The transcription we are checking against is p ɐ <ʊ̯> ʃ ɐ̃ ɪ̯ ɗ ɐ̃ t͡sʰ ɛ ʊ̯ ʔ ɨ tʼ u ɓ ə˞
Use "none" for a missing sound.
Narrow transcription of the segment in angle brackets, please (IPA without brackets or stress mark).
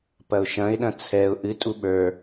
ʊ̯